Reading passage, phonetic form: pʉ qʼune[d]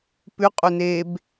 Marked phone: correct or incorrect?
incorrect